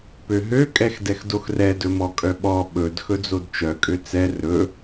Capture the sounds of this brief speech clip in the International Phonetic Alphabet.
pøɦø kʼɛxdɛxdoxrɛ dɵmɔkʼœɓɔ ɓɵd xɵd͡zodt͡ʃœ kʼøt͡sɛ rɵ

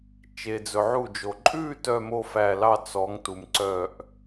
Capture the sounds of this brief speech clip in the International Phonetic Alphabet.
t͡ʃe˩d͡zɵ˩ʕu˧˩d͡ʒo˩ ǃʼʉ˥˧ tœ˥˧mo˥˧fæ˧˩lɑ˥˧ t͡sɔ˨˦ŋ tu˩mǀœ˧˩ʔ

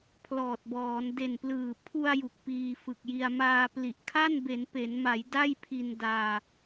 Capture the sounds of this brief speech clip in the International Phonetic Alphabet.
pʰlɔː˨˩t̚bɔː˩˦n de˨˩nplɯː˨˩ pʰu˧a̯ ju˨˩k̚piː˧fɯ˨˩k̚ji˧a̯ maː˧ pli˨˩ʔkʰa˥˩n be˩˦npe˩˦nma˩˦j da˥˩jpʰi˧n daː˧

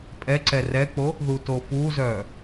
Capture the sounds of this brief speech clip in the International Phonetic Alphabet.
pʼɛǀɛ rɛk͡po | ðutofuzœː

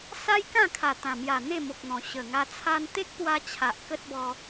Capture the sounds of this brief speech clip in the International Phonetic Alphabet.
sa˦jkã˥˧ kʰa˨˩t̪ã˨˩mja˨˩ n̪e˥˧mo˨k̚n̪ɔ̃˨˩ ɕə˨˩ŋa˧ t͡sʰa˧nt̪e˦k̚ pwa˧t͡ɕʰa˨ʔ kə˦t̚bɔ˧

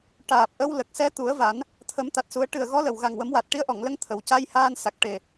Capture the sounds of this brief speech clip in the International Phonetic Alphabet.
ʈaː˨˩p̚ʔə˧w lə˨˩k̚sɛ˧˥ t̪u˨˩˦ə̯va˨˩˦n | t̪ʰə˨˩˦mt̪a˨˩t̚su˨˩˦ə̯ ʈɨ˨˩ə̯ɣɔ˧˥lə˨˩w ɣa˨˩ŋwə˨˩˦mwa˨˩t̚ ʈi˧˥ə̯ʔɔ˨˩˨ŋlə˧˥ŋ t̪ʰə˨˩w ca˧jhaː˧n sa˨˩k̚ʈe˨˩

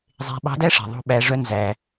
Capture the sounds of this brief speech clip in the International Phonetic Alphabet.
zˤe̤˧ ɓɑ̤˧˥dæ˥ʂe̤˩ ðˤo̤˧ɓæ˩˧ʐœ˧ nzæ˩

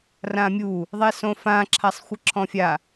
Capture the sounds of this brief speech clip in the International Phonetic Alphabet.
rãmʲu | ðˤɛsõfã ǁʰasˤxʷɘǁʰɔ̃fʲa

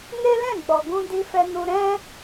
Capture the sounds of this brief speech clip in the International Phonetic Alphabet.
ne˦lɛ̃˦˨ɡ͡bɔ˨ɡũ˧ di˧fɛ˧nu˧ ɾɛ̃˦

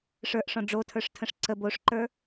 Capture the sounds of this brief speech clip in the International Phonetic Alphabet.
ʂə˞ʔʂɔ̃ ɖ͡ʐotʰə˞ʂtʰə̃ʂ ǀəb oʂǃə˞

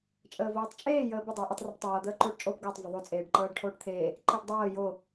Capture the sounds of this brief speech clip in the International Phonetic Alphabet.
t͡ʃʼəːvoːtˤt͡ʃʼeː jəːbə dˤəːʔətˤ roptˤɤː d̪əːǃoːʈt͡ʃʼoːpɡəːtˤ vəðˤo t͡sʼeːɖǃɤːɖʈʰoːʈt̪ʰeː | ǃəːɖdˤɤː jo

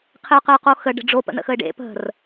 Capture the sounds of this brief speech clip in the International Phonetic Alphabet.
qʰɘʊ̯qəʊ̯qoxə ɖə̤ɖ͡ʐo pə̰nə̰xəɪ̯ɖḛ pə̤r

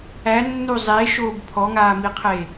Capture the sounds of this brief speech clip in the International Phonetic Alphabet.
ænːu zˤeʃoːb pʰɔŋaːmiqʰe

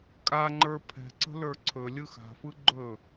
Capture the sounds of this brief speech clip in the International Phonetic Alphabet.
kʼaŋ͡ǃə˞ pʰɛ̤ǀə̤ lə˞ǀʰɵlʲɯ xa̤fɯ ɡ͡ǃɵ

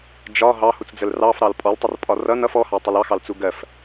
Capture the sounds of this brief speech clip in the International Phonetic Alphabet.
d͡ʒɒ ɦɑhut͡sd͡zəl rɑfɾɑl pʼɔltˤərpʼɒ rʌn ʌf ɔhɑtˤɪl ɑxɑlt͡su ɡɜf

